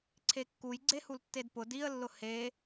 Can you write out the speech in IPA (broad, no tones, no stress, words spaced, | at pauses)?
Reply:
ǀʰekːuj ɡ͡ǀehultːedpʊ diə̯lːʊ he